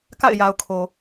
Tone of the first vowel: falling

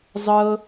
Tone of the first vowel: low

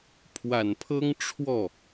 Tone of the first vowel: low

